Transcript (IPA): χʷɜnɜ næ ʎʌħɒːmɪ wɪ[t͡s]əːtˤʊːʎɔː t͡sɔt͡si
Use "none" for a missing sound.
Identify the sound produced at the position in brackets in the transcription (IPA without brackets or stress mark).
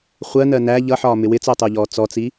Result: t͡s